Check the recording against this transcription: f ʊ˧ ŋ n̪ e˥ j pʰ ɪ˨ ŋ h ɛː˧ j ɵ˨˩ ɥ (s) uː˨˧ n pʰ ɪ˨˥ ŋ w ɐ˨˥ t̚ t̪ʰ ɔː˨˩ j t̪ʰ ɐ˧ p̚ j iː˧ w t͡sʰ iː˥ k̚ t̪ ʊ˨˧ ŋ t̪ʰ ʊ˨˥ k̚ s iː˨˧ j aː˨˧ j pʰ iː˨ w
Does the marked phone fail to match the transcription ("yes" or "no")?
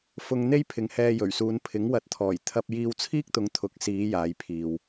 no